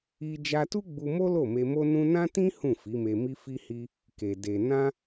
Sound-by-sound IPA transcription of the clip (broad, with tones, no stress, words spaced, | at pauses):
i˧ d͡ʒa˧tu˦ɡ͡bu˧mo˦ lo˦˨me˧mo˦ nũ˦ nã˦tĩ˦ hũ˦˨fi˨˦me˧mi˦ fi˧hi˧ | ke˨ de˨ nã˧